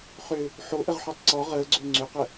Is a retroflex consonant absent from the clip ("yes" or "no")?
yes